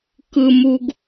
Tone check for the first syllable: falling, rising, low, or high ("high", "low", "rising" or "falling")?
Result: low